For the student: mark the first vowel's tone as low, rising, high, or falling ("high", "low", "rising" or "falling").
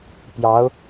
rising